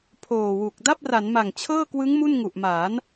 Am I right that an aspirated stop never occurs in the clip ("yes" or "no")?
no